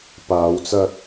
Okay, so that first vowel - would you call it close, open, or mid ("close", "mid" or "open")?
open